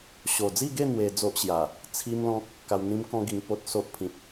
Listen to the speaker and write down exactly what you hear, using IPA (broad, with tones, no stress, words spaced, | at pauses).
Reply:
ɕo˨˩d͡zi˥˧ɡe˥˧ n̪we˧d͡zo˦ʔɕja˨˩ | t͡sʰi˦mlɔ̃˦k̚ | ka˧wn̪ĩ˦mkɔ̃˦ ɡi˧ŋpo˦t̚so˦ʔ pʰĩ˨p̚